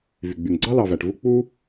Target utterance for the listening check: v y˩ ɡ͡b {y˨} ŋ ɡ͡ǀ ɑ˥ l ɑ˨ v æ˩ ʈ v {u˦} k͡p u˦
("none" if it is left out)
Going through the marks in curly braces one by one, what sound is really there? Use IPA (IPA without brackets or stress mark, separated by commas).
y˩, u˦